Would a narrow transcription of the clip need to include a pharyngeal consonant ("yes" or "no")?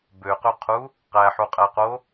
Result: yes